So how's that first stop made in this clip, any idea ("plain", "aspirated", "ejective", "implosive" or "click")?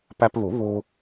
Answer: plain